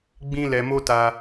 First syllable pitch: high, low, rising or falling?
high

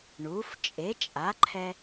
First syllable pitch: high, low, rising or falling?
rising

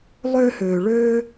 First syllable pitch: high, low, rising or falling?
high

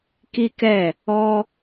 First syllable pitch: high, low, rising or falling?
high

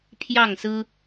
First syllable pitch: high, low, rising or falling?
falling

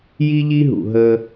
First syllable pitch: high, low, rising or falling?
high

